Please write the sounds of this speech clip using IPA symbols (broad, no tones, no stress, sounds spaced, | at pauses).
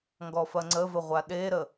ŋ ɡ ɔ f ɐ ŋ͡ǀ ə v ə ʁʷ a ɗ e ɾ ə